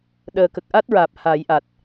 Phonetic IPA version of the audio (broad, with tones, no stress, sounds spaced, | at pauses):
ɗ əː˨˩ k ə˨˩ k̚ ʔ a˦˥ t̚ ɹ aː˨˩ p̚ h a˨˩˦ j ʔ a˨˩ t̚